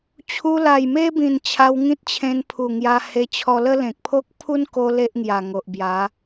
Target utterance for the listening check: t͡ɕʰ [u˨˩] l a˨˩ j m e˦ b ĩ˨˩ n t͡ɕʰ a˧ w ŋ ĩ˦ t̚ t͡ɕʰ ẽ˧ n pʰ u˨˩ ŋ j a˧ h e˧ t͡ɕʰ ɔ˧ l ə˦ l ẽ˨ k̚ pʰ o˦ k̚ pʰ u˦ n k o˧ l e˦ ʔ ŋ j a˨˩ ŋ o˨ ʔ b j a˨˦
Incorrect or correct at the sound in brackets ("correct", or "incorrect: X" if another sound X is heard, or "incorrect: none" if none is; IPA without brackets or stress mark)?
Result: incorrect: u˧